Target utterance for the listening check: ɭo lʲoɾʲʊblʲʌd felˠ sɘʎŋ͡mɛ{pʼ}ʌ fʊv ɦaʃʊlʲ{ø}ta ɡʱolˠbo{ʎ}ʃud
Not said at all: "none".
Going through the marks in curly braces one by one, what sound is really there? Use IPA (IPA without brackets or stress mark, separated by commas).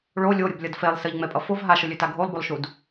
pʼ, ø, lˠ